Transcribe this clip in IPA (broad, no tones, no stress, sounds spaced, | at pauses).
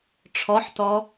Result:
ʈ͡ʂʰ ɔ ħ t ɔ